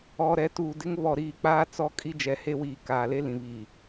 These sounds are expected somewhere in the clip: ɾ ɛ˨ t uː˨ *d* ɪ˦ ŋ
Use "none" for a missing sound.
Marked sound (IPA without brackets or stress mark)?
d